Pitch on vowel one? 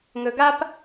low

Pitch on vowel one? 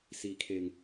low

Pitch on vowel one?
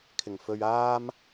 low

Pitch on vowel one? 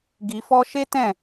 low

